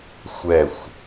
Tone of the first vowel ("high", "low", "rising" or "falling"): falling